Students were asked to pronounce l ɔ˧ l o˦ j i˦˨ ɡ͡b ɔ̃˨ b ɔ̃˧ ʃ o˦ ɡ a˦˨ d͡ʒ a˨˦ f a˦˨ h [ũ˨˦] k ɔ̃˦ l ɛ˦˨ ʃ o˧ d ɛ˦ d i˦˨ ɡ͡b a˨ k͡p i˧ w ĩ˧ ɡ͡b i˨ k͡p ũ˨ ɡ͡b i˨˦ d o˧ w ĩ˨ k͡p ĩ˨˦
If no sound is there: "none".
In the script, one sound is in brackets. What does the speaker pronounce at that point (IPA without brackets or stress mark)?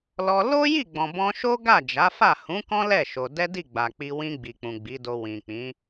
ũ˨˦